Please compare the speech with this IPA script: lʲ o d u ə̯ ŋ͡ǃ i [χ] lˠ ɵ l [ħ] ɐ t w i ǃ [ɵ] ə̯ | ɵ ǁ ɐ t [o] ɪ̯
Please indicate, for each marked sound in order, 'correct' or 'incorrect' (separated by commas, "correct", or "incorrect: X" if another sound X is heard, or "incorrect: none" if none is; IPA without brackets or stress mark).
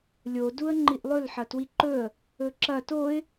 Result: incorrect: ʔ, correct, correct, correct